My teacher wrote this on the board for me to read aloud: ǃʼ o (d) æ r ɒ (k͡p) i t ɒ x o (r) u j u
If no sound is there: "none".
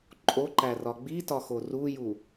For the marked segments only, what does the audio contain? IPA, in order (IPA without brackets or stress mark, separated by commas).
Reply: ǃ, ɡ͡b, r